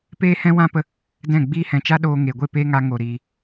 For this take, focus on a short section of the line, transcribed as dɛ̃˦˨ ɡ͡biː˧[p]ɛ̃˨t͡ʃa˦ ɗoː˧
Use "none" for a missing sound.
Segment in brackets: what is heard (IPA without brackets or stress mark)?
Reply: h